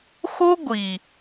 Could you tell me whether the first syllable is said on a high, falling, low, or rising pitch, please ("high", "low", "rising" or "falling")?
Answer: high